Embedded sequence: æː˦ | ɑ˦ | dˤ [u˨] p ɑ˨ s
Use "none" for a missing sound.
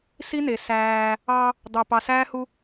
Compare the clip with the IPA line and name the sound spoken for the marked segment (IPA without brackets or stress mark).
ø˨